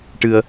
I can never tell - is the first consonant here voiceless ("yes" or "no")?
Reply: yes